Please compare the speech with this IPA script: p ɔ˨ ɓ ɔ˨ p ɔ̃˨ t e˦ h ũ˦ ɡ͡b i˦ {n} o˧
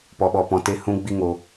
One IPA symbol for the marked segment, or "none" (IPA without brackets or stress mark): ŋ